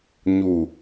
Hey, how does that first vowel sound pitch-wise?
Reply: low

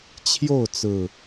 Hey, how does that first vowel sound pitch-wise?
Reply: falling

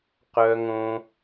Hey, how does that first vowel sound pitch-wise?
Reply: high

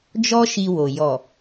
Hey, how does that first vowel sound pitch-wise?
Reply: high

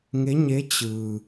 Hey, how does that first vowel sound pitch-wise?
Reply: rising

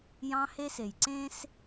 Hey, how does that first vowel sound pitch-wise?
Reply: high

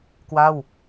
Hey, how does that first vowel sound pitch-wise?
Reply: falling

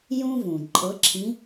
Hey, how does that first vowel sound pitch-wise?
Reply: high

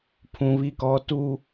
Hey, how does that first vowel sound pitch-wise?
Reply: high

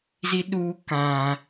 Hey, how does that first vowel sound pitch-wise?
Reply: high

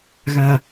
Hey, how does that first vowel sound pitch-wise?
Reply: low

